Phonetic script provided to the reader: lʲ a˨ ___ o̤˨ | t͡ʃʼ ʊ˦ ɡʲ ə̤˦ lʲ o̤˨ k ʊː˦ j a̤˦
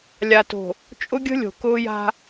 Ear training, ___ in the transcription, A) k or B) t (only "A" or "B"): B